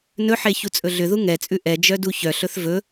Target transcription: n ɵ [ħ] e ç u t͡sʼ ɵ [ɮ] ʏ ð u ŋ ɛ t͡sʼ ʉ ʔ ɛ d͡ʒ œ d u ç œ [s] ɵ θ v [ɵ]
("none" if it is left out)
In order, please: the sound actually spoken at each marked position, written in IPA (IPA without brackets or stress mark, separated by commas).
ħ, ɮ, ɬ, ɵ